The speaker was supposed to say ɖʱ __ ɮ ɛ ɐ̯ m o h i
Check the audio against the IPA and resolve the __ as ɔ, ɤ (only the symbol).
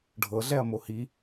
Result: ɤ